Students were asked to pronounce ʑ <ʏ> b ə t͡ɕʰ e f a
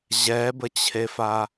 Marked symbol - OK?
no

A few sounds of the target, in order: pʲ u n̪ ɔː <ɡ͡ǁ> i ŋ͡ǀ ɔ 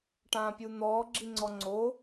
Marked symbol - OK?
yes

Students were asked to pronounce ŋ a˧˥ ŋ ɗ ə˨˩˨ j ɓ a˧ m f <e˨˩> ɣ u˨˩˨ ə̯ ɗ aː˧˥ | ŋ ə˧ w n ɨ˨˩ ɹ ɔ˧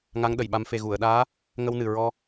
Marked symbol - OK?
yes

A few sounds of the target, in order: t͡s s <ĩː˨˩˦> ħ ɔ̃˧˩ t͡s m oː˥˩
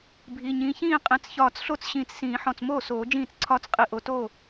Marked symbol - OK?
yes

